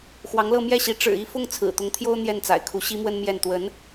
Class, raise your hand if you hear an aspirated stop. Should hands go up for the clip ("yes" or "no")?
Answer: yes